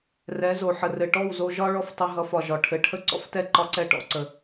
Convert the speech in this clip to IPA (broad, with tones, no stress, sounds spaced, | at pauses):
r ɛ˨˦ z o˨ ħ ə˨ r ɘ˨ ʈ ɔ˦˨ w z o˧ ʒ ɒ˦ ɭ ɔ˦ f tˤ ə˧ ɦ ʌ˨˦ f ɒ˨ ʒ ɒ˨ ʈʰ ɘ˨ ʈʰ ə˦ ǀ ɔ̰˦ f t ɛ˦ ǃ ɒ˦ ǀ ɛ˦ ʈ ɔ̰˧ ǀ ə˨